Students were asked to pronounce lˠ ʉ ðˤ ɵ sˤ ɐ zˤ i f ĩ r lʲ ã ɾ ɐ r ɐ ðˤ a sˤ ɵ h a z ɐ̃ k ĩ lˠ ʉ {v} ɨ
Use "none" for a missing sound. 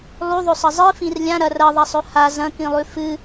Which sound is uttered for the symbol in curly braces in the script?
f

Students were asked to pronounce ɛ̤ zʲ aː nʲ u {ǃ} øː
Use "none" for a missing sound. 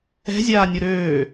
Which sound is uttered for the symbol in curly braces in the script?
ɾ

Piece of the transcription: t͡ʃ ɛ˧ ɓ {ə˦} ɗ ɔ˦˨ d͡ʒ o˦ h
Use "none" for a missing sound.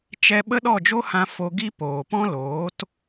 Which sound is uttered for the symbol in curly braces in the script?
ə˦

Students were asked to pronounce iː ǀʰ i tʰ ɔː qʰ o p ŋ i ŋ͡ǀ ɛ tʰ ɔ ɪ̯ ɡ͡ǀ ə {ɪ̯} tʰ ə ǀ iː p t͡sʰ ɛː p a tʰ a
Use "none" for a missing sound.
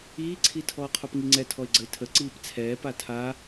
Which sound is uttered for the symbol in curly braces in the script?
ɪ̯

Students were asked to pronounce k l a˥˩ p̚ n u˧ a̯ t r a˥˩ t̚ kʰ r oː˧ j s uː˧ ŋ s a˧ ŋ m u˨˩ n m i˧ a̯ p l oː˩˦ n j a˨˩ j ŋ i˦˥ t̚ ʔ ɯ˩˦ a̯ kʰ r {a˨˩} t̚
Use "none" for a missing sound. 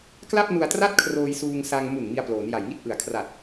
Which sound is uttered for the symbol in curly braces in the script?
a˨˩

